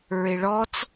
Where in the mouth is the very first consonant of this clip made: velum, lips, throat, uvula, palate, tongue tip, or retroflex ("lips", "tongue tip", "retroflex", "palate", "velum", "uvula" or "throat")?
tongue tip